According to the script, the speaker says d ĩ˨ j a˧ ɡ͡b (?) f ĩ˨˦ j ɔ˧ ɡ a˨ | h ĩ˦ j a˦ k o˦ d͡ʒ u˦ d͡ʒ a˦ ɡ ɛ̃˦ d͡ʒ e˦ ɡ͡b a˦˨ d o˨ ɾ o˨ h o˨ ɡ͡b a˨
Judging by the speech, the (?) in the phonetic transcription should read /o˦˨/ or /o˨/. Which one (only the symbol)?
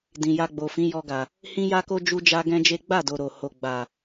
o˨